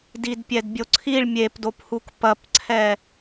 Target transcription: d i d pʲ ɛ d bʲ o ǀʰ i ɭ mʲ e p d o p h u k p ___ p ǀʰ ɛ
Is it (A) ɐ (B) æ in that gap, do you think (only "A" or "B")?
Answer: A